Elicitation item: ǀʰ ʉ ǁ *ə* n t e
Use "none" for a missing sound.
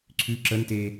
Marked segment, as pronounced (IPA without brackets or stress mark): ə